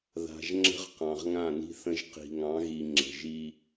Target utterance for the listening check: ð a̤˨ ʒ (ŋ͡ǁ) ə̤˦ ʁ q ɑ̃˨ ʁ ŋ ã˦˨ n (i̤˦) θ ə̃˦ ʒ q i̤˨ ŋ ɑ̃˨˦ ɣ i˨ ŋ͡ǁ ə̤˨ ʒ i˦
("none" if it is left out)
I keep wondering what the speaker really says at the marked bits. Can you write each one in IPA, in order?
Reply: ŋ͡ǁ, i̤˦

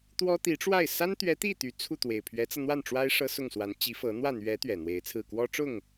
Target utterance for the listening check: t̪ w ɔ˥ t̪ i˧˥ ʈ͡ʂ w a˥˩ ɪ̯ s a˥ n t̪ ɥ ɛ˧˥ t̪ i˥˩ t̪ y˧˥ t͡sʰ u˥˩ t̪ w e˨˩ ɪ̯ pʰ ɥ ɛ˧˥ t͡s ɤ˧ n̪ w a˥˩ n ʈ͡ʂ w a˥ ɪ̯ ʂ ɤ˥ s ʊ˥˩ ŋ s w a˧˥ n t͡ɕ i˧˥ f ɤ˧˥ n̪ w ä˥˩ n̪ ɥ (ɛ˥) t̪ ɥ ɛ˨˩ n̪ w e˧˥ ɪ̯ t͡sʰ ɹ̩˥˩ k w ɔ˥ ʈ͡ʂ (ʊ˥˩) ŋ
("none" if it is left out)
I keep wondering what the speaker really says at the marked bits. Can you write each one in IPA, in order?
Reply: ɛ˧˥, ʊ˥˩

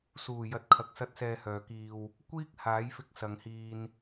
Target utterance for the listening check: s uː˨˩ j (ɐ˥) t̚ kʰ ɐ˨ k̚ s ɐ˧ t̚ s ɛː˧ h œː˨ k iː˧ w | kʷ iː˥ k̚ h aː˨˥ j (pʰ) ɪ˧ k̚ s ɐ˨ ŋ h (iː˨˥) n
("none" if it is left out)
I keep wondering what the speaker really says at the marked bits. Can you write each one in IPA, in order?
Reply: ɐ˨, f, iː˧

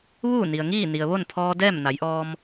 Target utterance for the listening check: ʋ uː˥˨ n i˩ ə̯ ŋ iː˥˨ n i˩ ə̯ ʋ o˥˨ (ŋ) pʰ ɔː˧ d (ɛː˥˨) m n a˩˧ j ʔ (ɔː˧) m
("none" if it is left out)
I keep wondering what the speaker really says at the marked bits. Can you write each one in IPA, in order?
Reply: n, ɛː˥˨, ɔː˧

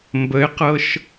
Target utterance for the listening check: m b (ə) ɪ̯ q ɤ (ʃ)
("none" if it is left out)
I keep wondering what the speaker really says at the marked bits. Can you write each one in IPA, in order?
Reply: ə, ʃ

